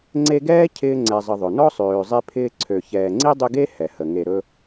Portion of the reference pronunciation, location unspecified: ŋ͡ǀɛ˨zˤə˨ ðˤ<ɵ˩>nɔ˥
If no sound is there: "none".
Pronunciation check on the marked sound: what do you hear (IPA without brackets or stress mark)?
ɵ˩